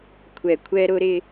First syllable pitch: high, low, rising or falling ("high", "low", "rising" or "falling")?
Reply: low